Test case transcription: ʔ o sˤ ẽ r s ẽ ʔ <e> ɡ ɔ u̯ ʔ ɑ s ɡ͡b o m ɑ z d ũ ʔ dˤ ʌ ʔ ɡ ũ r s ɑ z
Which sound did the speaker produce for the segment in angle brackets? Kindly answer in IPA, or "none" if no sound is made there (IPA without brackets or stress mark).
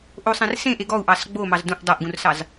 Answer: e